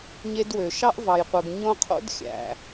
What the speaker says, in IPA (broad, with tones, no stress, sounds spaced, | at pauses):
ɲ e˦ d w ø˩ ʃ ɑ˥ ʔ v ɑ˩ j qʷ ɯ˩ ɡ ɲ õ˦ qʰ o̰˥ d xʲ æ̰˩